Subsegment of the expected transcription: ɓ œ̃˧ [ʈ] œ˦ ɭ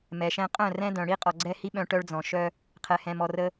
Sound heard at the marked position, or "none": ʈ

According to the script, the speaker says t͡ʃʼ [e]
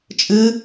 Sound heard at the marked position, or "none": ɨ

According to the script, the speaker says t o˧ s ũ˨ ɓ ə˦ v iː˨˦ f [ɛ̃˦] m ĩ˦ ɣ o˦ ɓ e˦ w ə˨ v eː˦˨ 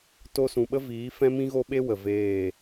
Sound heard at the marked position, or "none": ɛ̃˦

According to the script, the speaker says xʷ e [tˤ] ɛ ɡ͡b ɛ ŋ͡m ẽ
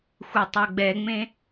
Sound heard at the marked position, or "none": tˤ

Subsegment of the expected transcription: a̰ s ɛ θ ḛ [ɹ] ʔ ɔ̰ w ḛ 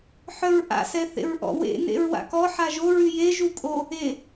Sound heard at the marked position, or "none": ɹ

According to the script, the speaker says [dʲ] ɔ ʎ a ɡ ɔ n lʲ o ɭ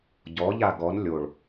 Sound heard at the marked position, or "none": ɟ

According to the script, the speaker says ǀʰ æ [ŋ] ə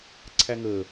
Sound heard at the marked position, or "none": ŋ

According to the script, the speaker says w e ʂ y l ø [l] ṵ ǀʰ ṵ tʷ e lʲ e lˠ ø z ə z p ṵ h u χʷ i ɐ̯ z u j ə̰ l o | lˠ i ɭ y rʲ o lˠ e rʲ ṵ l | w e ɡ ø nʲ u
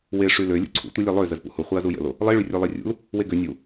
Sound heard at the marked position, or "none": lʲ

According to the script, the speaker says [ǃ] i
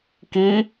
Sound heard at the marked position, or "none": k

